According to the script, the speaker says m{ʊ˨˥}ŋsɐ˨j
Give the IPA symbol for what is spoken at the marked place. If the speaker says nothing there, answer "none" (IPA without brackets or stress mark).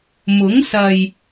ʊ˨˥